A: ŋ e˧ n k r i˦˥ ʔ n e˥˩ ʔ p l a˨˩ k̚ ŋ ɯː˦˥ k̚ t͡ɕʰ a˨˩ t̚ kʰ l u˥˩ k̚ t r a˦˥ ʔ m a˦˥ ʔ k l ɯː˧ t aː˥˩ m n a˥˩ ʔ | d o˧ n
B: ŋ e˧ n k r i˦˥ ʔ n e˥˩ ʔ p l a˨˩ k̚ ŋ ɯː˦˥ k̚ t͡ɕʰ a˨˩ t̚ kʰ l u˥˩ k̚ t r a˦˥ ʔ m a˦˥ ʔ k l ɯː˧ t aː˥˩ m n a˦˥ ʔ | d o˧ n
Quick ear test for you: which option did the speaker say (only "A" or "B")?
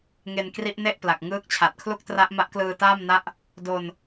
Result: A